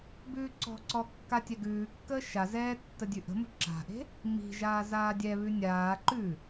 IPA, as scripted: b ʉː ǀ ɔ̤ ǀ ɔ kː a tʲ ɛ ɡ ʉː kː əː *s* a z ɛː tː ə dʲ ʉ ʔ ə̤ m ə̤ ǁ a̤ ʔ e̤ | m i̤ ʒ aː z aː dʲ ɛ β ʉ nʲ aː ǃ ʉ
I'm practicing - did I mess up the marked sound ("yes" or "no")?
yes